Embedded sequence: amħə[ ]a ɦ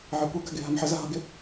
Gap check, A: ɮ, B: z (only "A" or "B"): B